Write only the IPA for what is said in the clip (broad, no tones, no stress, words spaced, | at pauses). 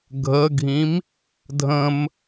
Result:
ɡʱəɡʱĩm | dʱə̃m